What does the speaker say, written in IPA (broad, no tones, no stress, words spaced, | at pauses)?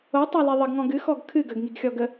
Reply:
otˤali ðˤəɡŋɔ̃ ɡɨxɔɡ kʰɨ ɡəɡŋiɡxʲɔ ɡə